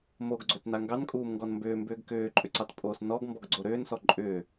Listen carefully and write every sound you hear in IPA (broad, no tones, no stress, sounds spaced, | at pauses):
m o ɡ ɡ͡ǀ o t n a ŋ ɡ ɑ n kʼ uː m ŋ ɡ ɔ n m b ʏː m b ʏː ɡ k ʏː ǃʼ ʏ ǀ ɑ t pʼ oː s n ɔ ɡ m b ɔ ɡ ɡ͡ǀ o ɾ ʏː n s ɔ ǃʼ ʏː